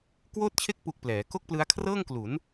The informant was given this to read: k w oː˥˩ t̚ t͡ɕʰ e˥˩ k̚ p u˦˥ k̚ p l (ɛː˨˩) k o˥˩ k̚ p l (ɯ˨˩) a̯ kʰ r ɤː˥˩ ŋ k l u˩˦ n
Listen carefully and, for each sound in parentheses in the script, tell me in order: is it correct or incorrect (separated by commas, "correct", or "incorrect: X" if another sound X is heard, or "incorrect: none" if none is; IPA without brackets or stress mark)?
incorrect: ɛː˩˦, incorrect: ɯ˦˥